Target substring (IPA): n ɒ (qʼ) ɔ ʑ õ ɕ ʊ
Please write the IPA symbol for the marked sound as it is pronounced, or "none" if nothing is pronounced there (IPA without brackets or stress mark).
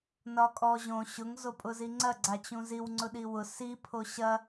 kʼ